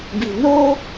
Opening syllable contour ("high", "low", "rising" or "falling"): low